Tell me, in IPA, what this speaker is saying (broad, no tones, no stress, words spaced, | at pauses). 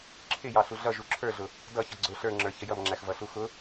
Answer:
ǁʰɪ jɑɬuɮʌ ʒuǁʰə˞ɮʊ | dʌ çʌɡ͡ǀʊ ɬə˞ŋ͡ǁə˞ çəjʌmŋ͡ǁæx vʌɬuxʊ